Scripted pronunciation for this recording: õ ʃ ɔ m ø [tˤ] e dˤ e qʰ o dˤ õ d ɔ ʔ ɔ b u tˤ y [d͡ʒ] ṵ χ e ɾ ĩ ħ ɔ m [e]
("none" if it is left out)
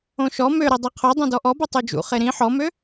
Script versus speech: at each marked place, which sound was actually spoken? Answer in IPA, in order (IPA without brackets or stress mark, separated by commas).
ɾ, d͡ʒ, ø